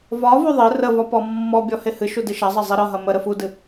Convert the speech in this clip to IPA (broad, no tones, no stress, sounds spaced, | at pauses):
v ɒ v u ðˤ ɪ r ə v ɒ p ɔ mː ɔ bʲ ɔ h e h ɨ ʃ u d ɨ ʃ ɐ zˤ ɐ zˤ i ɾ ɒ ɦ ɐ m ə ɾ ə f u d ɨ